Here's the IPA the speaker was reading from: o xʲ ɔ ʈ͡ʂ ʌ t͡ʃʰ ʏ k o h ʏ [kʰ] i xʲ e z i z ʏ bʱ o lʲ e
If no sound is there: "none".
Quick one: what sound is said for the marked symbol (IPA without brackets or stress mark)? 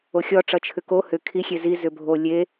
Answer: kʰ